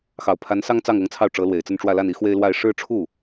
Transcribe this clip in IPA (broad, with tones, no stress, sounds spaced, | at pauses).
x ɑ˨˩ ʊ̯ pʰ a˧˥ n s ɑ˥ ŋ t͡s ɑ˥˩ ŋ ɤ˧˥ ŋ t͡sʰ ɑ˥˩ ʊ̯ ʈ͡ʂ ɤ˧˥ l w e˨˩ ɪ̯ t͡s ə˥˧ n ʈ͡ʂ w ä˥˧ l a˥˩ n i˥ x w e˥ ɪ̯ l w a˥˧ ɪ̯ ʂ ɻ̩˥˧ ʈ͡ʂʰ u˥˩